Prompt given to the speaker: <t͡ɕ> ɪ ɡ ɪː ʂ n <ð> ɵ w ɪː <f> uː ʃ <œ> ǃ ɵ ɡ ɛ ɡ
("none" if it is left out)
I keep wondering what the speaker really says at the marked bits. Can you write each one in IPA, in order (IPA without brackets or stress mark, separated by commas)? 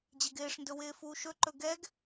d͡ʑ, d, f, ɵ